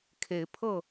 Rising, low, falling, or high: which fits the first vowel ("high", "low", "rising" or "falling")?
rising